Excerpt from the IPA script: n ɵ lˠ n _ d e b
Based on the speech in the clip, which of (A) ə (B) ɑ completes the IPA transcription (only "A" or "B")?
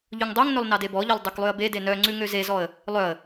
B